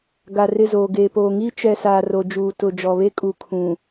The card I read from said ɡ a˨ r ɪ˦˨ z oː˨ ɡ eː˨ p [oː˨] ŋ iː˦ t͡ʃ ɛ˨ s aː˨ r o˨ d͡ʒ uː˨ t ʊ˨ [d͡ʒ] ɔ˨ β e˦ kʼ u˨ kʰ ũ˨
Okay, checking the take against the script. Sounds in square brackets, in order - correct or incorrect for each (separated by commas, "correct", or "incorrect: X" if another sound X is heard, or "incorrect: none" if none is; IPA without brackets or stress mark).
correct, correct